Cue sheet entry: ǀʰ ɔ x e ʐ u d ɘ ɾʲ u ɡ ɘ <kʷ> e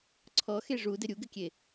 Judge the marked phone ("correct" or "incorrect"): incorrect